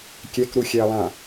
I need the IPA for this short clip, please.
kʲ ɛ k ɾ u xʲ ɛ ɐ̯ lˠ ã

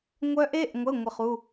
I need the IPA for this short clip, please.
ŋʷ œ˦˥ ʔ e˧˥˧ ʔ ŋʷ ə˧˥˧ ŋʷ ɘ˦˨ χ u˧˥˧

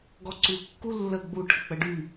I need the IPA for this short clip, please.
ɡ ɔ ǀ u kː u lː ə ɡ͡b u ʈʰ ə k͡p ə ɖ y

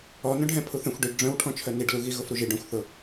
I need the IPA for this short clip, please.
ɔ n œ̃ ɖʱ ɛ̃ pʰ u θ œ̃ xʷ ɖ i ɖ ɖ͡ʐ œ̃ w ʈʰ ɔ̃ t͡ʃʰ œ n i ɖ l u ɣ i ɣ ʊ f ɾ u ʒ i ɖ œ̃ xʷ θ ʊ

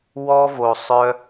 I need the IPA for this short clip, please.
w ɔ˦ v o˧ sˤ œ˦

